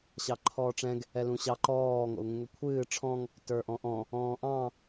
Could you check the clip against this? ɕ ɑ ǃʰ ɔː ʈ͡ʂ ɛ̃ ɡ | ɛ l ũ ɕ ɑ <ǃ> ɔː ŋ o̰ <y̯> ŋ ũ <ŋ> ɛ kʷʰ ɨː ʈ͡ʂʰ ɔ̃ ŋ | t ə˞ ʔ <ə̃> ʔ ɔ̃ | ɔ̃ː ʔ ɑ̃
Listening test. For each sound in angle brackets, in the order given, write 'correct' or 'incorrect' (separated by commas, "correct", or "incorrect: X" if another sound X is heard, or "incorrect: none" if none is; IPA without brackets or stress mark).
correct, incorrect: u̯, correct, incorrect: ɔ̃